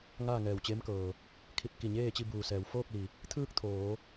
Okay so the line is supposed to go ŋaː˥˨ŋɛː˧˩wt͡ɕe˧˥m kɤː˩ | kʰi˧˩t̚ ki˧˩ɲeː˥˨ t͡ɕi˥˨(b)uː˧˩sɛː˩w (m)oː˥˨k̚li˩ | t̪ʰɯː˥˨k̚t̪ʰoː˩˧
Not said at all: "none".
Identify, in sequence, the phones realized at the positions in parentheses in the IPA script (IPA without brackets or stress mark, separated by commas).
b, f